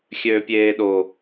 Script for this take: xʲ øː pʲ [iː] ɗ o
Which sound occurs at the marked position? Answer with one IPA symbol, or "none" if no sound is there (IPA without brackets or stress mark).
eː